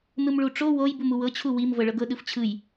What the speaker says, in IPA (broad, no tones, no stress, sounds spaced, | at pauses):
n̪ ɯ m ɭ u ʈ͡ʂ o w o j b u m u w ɤ t͡ɕʰ u w i m v ɤ ɭ ɤ ɡ ɤ ɗ ɯ f t͡ɕʰ ɯ j